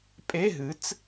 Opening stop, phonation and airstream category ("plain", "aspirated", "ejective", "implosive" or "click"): ejective